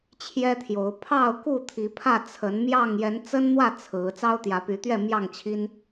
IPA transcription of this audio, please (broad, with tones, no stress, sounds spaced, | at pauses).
t͡ɕʰ j ɛ˦ t̪ʰ j o˨˦ ʊ̯ pʰ ɑ˥˨ ʊ̯ k u˥˨ t̪ʰ i˨˦ pʰ ä˥˨ t͡sʰ ə˨˦ n m j ɑ˥˨ ŋ j ɛ˨˦ n t͡s ə˦ n n̪ w ä˥˨ t͡sʰ ɹ̩˨˦ t͡s ɑ˦ ʊ̯ t̪ j ä˨˦ p y˨˦ t̪ ɥ ɛ˥˨ m j ɑ˥˨ ŋ t͡ɕʰ i˦ n